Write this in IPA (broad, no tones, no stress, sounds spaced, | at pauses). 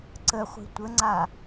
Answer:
ǀ ə χʷ i̤ tʷ ə ŋ͡ǀ a